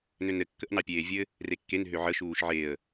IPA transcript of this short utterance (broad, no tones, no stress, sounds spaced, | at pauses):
n ø n ɾ ɘ kː ə ʔ n ɑ pʲ eː vʲ ɘ | r e kː e n ɦ ø ʕ ə ʃ uː ʃ ʕ e ə̯